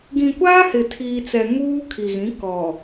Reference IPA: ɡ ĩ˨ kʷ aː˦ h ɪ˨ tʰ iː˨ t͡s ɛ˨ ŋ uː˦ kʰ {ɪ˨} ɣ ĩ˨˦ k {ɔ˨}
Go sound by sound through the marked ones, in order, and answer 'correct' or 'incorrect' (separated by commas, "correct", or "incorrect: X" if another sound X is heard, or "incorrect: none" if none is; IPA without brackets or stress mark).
incorrect: i˨, correct